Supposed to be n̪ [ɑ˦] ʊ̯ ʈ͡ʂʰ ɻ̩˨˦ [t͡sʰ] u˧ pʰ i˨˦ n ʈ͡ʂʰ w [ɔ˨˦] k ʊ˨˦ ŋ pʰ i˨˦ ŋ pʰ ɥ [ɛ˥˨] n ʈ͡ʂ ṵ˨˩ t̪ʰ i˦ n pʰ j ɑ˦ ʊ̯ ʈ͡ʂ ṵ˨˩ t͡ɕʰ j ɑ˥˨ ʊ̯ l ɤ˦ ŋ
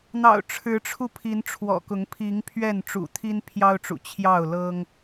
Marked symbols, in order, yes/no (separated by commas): no, no, no, yes